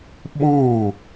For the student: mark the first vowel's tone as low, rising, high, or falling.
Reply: falling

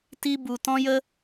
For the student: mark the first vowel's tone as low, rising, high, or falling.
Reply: high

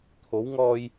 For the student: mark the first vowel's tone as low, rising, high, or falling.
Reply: rising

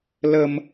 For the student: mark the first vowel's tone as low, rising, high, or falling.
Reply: low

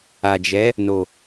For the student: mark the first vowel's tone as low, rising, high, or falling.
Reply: low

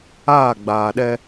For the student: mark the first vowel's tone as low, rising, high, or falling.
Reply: falling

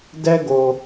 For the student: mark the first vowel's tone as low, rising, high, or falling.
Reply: high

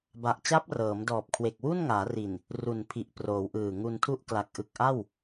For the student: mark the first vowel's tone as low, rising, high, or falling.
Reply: low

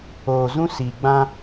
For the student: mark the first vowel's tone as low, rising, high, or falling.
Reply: low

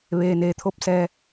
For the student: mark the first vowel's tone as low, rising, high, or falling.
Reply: low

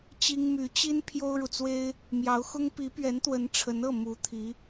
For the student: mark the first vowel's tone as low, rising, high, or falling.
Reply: high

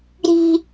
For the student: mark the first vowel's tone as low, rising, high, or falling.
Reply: high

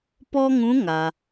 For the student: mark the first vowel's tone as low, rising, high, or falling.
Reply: high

